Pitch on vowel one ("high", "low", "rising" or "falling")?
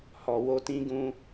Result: low